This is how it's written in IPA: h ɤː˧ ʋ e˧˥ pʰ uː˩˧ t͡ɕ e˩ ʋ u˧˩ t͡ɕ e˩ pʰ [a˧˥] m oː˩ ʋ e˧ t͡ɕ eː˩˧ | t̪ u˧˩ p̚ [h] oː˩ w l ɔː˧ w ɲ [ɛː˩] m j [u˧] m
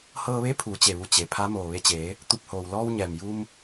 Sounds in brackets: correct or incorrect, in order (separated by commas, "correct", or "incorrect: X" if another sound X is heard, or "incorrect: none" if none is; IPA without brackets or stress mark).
correct, correct, correct, correct